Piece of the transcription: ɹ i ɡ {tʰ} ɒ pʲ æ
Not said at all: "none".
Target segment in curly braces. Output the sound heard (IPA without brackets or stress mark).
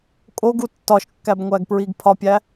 pʰ